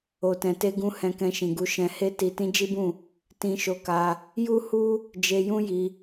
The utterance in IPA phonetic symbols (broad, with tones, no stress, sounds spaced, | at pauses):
o˨ t ɛ̃˨ t e˧ ɡ ũ˧ h ɛ̃˧ k ɛ̃˧ ʃ ĩ˨ ɡ u˧ ʃ ɛ̃˧ h e˦ t i˧ t ĩ˦ d͡ʒ i˦ b ũ˦˨ | t ĩ˧ ʃ o˧ k a˧ | j u˦ h u˦ | d͡ʒ e˧ j ũ˦ j i˧